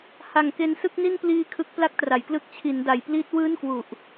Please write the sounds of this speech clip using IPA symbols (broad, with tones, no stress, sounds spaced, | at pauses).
h a˨˩ ŋ k e˧ n s ɯ˥˩ k̚ n i˥˩ n p l iː˧ kʰ ɯ˦˥ k̚ p l a˥˩ k̚ t r a˩˦ j k l ɯ˦˥ k̚ t͡ɕʰ i˩˦ n d a˨˩ j p l iː˦˥ t̚ w ɯː˥˩ n k w u˨˩ ʔ